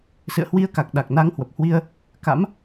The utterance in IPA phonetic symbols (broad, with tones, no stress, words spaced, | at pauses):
sɨ̰˧˨ə̯hwi˧ə̯ka˨˩k̚ ɗa˨˩k̚na˧ŋhwə˨˩p̚hwi˧ə̯ | ka̰˧˥m